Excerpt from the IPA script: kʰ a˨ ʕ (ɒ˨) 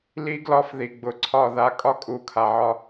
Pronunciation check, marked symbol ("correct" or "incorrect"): incorrect